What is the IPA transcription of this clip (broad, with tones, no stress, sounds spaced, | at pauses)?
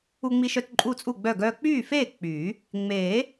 u˧ ŋ͡m i˧ ʃ œ˧ t ǃʼ u˥˨ t͡sʼ u˥˨ ɡ͡b œ˥˨ ɡ œː˧ k͡p yː˥˨ f eː˥˨ k͡p yː˨˩˦ | ŋ͡m eː˨˩˦